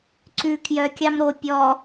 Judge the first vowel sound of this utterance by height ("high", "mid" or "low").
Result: high